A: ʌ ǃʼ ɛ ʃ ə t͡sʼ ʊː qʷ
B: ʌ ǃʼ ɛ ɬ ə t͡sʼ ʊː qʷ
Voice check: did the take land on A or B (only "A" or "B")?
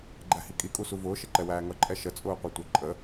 A